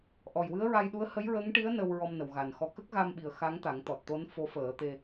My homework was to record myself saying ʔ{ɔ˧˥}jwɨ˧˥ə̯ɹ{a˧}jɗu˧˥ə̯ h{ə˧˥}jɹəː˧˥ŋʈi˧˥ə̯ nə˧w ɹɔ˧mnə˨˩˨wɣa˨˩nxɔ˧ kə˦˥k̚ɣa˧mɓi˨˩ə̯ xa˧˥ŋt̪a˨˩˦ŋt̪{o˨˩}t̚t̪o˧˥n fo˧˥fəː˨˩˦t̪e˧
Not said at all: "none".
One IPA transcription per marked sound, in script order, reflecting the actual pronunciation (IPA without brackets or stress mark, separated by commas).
ɔ˨˩, a˧, ə˧˥, ɔ˨˩